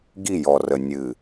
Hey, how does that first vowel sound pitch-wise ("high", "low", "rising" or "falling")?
falling